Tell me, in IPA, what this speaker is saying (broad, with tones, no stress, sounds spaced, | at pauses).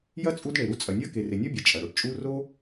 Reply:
j ɐ˥ t͡sʼ u˥ d ɳ e˨ ɾ u˦ t͡sʼ ɐ˨ nʲ ɐ˥ k e˨ r e˨ nʲ ɔ˥ bʲ ɐ˨ t͡ʃʼ ɐ˩ ɽ o˨ ʈ t͡ʃʼ u˦ r o˥